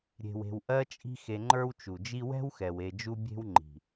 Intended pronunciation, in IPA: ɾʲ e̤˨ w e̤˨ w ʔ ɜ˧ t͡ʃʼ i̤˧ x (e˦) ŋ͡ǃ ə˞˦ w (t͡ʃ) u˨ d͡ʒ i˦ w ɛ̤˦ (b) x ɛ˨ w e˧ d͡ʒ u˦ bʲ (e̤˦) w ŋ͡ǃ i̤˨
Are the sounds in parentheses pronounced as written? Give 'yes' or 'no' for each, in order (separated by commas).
no, yes, no, yes